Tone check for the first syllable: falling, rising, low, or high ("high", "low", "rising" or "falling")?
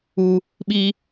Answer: high